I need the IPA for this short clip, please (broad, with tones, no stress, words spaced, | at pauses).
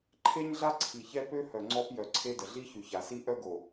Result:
ǃʰe˦ɲɮa˦ǀʰi˨ çɛ˦ pø˦hœ˨ ŋ͡ǀɔ˦p jœ˨ǀʰe˦də˨ ɮi˦çy˨ça˨si˦ ʔœ˦ɡo˨